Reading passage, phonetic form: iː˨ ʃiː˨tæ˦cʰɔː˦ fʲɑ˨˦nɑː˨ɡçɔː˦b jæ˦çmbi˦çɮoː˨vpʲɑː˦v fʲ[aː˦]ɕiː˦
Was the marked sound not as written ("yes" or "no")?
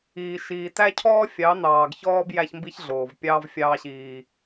yes